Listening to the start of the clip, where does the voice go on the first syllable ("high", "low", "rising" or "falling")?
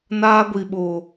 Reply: high